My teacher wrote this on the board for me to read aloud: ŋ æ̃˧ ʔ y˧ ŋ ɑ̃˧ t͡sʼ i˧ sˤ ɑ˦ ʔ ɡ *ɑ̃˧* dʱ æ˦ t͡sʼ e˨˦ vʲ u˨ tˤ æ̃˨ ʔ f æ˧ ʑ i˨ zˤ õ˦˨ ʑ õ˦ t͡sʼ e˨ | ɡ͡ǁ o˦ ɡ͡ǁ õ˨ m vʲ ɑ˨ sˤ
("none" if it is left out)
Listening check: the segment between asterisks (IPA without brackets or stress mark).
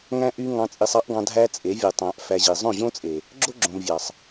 ɑ̃˧